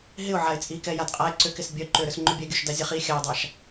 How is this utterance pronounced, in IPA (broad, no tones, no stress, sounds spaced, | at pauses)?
ɦ ɪ ʊ̯ ʕ a ɪ̯ t͡sʼ i k ɛ j a d qʼ a ɪ̯ ǀ ʏ k ɪ s bʲ œ ǃ ʏ ɾ ʏ s ŋ͡ǃ ʏ bʲ ɛ ɡʲ œ ʃ d a zʲ a χ i xʲ a j dˤ a ʃ